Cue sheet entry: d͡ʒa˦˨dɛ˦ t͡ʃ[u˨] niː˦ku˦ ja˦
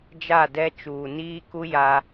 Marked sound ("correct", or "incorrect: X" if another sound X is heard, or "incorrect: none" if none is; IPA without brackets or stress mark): incorrect: uː˨